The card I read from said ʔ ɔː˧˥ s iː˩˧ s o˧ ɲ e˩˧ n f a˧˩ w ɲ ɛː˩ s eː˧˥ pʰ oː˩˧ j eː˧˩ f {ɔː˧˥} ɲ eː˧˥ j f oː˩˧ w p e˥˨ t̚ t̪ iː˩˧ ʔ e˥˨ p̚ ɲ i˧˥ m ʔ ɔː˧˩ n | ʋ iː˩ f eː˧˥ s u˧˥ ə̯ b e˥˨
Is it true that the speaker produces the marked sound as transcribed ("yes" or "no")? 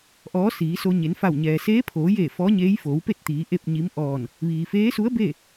yes